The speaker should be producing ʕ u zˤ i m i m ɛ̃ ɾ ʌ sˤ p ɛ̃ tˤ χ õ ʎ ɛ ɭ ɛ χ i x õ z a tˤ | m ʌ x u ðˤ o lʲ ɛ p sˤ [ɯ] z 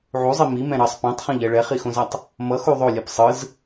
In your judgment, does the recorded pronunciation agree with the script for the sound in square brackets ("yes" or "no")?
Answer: yes